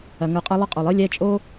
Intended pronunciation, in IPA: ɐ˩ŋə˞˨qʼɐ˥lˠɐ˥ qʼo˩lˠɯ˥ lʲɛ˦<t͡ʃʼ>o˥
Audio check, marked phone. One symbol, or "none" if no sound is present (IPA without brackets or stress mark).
t͡ʃʼ